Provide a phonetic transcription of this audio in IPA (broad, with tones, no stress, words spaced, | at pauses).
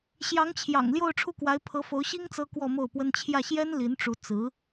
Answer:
ɕjɑ˧˥ŋt͡ɕʰjɑ̰˨˩ŋ ljo˥˧ʊ̯ʈ͡ʂʰu˥˩kwa˧˥ɪ̯ pʰɤ˧˥fo˧˥ʊ̯ɕi˥ŋ t͡sɤ˥kwɔ˥˧mo˥˩ʊ̯pwə˥n t͡ɕʰjä˥˩ɕjɛ˥n li˧˥nʈ͡ʂu˧˥ t͡sɹ̩˧˥